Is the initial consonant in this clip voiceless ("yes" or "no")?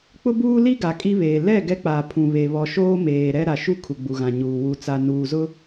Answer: yes